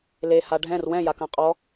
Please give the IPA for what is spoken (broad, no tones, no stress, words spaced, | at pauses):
leha ɖʱɛ̃r wɛ̃jakã qʼɔ